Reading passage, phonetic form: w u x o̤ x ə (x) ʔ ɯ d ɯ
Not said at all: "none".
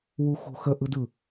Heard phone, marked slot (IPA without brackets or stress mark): none